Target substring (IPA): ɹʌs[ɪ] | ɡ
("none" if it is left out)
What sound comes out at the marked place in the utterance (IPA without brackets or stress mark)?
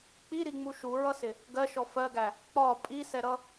ɪ